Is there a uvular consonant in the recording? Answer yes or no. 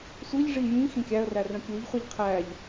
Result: yes